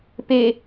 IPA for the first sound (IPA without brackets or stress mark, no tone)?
p